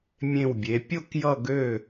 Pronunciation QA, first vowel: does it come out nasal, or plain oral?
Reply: nasal